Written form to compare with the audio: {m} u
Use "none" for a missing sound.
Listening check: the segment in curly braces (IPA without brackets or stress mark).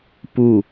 p